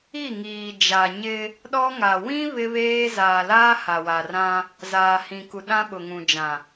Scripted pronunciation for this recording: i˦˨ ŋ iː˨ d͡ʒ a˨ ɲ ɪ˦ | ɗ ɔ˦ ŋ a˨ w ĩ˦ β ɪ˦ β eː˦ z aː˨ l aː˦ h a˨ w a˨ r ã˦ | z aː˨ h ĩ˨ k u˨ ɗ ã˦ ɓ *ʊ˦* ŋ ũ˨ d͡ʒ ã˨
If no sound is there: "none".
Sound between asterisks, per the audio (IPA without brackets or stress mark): ʊ˨